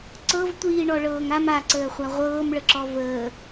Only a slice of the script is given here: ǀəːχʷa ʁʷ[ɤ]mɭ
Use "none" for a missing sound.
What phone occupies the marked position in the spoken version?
ɤː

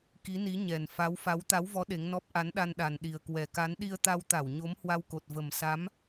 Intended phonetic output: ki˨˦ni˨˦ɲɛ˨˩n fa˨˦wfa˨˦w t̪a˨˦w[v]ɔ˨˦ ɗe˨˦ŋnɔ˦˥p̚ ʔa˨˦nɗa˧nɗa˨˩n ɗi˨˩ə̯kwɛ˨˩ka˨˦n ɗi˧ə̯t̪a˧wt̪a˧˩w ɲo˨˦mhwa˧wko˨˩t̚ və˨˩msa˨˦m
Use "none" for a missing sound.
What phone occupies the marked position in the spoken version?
v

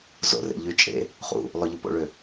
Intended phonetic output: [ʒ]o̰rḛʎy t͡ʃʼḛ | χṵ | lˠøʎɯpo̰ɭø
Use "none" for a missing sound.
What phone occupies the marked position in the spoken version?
z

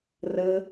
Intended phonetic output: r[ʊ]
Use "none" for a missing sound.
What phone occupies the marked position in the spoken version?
ə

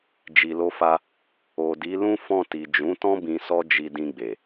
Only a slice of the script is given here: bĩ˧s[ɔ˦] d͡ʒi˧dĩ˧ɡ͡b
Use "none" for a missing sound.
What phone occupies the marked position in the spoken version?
ɔ˦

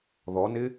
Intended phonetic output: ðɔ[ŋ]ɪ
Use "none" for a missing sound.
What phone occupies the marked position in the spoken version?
n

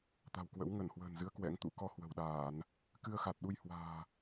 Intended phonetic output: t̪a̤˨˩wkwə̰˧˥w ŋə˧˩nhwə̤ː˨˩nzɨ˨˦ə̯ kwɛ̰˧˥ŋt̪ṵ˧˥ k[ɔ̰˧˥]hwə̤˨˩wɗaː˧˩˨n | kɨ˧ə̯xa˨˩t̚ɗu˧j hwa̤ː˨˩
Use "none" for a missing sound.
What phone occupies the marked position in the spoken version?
ɔ˧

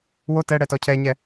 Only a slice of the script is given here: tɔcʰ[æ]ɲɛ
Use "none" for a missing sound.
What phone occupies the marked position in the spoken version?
ɛ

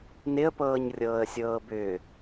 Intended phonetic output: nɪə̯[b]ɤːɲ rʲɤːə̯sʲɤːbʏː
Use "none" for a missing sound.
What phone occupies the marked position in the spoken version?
p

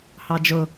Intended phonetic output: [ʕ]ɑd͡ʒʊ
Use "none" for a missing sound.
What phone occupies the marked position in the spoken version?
h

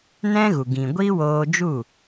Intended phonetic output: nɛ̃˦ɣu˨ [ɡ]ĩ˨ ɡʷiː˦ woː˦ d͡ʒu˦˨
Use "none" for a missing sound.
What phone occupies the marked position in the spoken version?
ɡ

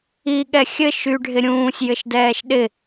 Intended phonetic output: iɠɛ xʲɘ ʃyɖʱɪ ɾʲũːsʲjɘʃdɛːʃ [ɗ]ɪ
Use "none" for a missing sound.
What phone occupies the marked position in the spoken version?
ɗ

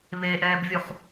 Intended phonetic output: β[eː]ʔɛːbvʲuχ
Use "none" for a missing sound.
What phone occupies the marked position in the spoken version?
eː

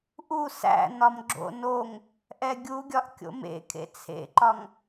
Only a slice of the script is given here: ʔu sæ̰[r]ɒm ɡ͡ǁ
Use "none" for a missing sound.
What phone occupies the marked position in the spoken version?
n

